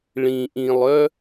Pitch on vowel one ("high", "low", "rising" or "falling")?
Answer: low